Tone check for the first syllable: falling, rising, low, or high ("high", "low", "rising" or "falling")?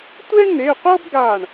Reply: high